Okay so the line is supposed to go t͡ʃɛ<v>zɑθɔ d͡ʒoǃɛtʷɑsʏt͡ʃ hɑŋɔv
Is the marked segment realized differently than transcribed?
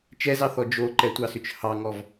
yes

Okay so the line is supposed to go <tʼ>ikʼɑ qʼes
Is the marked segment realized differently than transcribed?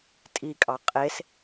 no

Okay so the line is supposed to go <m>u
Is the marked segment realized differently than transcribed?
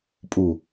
yes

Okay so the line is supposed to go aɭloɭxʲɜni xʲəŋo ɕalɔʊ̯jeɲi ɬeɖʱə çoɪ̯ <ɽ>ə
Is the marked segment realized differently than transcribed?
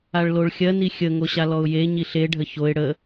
no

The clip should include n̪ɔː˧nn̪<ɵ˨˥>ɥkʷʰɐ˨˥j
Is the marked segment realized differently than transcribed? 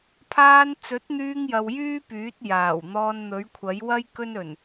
no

